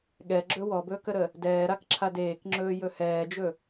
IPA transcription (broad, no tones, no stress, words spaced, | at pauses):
ɠɛɡ͡ǁɵ wɔbɵːkəɾə | dɛːɾakǁʰad eːkŋ͡ǁɵːjɵ hɛːd͡ʒɵ